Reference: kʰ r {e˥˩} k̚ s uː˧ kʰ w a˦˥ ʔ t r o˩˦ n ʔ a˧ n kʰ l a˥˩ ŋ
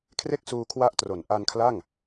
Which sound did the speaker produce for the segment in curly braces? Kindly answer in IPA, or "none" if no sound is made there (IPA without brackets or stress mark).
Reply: e˥˩